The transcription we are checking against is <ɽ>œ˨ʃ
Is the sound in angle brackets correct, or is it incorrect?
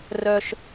incorrect: r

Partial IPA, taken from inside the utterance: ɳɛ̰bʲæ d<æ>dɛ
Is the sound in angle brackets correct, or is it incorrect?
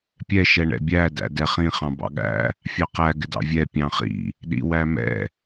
incorrect: æ̰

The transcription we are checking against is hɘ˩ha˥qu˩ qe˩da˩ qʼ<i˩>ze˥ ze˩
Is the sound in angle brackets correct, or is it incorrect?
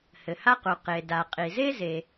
correct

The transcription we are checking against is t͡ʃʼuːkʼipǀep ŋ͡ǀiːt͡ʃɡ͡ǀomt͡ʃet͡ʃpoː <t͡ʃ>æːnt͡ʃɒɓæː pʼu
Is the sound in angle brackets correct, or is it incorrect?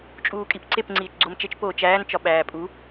correct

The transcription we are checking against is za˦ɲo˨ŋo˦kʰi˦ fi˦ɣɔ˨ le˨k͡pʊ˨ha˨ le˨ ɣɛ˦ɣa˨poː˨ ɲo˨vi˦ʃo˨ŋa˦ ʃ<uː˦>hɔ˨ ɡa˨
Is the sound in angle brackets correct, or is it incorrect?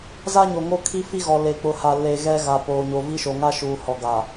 incorrect: uː˨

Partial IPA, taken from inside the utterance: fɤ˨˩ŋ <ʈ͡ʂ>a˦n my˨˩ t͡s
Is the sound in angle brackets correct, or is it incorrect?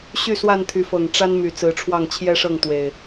correct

